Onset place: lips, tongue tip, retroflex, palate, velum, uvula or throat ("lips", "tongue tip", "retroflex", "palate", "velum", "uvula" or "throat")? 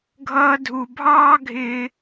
velum